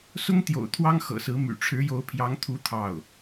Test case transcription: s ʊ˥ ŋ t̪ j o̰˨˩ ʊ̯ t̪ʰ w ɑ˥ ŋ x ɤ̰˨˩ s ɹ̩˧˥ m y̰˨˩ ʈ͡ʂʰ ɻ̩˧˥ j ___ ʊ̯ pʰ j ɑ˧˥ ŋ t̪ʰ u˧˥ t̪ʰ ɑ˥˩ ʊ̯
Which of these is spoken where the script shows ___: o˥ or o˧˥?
o˧˥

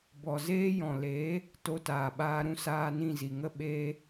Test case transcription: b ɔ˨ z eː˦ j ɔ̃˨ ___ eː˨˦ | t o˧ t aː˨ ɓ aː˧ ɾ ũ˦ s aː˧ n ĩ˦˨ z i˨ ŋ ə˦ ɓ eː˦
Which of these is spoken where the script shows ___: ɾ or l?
l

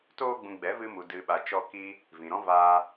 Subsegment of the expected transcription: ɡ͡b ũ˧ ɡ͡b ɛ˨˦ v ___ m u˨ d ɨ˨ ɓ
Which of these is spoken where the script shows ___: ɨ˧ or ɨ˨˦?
ɨ˧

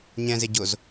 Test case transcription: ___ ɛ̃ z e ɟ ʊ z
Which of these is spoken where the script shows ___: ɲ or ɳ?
ɲ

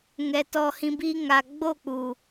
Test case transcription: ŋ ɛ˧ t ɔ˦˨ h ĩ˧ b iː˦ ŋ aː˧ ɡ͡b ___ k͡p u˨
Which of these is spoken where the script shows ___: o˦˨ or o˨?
o˦˨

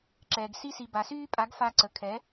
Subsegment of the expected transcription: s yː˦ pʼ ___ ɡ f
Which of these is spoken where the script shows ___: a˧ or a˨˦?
a˨˦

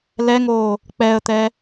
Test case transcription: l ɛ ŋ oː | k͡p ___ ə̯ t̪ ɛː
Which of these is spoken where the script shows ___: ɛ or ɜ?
ɛ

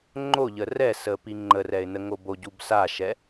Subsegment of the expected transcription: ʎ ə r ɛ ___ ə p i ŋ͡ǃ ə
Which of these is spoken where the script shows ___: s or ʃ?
s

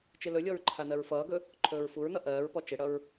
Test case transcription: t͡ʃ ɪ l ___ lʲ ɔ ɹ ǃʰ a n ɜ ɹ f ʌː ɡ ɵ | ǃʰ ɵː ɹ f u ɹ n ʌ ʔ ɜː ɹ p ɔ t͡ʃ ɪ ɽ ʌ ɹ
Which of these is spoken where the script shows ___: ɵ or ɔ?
ɵ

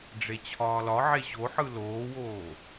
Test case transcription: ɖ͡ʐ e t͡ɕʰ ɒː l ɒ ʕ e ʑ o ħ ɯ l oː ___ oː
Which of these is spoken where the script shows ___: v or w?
w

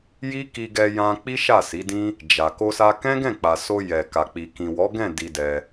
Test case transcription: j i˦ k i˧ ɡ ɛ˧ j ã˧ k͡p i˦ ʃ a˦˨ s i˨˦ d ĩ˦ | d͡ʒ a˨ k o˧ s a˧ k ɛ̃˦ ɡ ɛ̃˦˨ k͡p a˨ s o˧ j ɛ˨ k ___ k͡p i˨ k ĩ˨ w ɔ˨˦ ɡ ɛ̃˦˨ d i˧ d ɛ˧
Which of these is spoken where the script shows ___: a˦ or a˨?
a˨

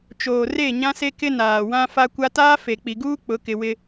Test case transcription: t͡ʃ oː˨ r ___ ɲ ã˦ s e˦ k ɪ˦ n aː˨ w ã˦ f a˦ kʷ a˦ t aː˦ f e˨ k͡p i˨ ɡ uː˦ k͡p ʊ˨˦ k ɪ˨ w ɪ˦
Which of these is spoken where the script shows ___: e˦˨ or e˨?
e˦˨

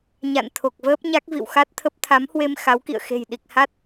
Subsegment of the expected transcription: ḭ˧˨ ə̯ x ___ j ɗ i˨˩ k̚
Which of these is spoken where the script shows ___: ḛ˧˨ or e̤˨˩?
e̤˨˩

